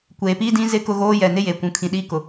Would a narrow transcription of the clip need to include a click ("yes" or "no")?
no